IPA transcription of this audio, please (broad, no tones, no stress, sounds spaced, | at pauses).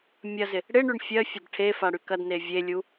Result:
mʲ ɐ z ɪ | ɽ ɪ ɳ y ɳ fʲ ɜ fʲ ɐ d ʈʰ e f a ɽ y k ɐ d n e vʲ e lʲ u